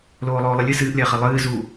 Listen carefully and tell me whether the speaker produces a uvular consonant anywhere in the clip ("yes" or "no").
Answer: yes